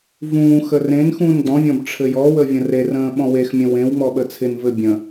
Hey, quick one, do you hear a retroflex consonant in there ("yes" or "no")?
yes